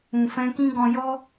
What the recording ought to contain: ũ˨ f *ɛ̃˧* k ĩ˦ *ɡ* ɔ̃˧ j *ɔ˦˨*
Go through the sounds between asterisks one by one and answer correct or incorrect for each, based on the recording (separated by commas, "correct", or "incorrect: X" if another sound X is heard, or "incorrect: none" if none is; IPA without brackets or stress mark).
correct, correct, incorrect: ɔ˦